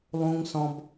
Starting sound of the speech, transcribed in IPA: lˠ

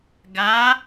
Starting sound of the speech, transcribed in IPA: ɡ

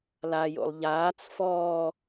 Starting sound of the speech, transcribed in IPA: l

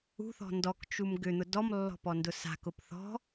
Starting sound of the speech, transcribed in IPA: ṳ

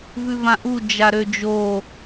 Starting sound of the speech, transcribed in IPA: v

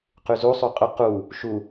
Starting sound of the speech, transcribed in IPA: q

